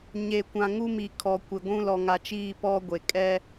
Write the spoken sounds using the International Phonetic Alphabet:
ɲe˨ kʷã˨ŋu˦mi˨ kʰɔ˨kʷɪ˨ɡʷũ˦ lɔ˨ŋa˨t͡ʃiː˦˨ pɔ˦ɡʷe˨ kʼɛ˦

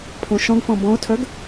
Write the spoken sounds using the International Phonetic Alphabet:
pʰõʃɔ̃ɡfɔ̃ bɔ̃o̯tʰœɡ

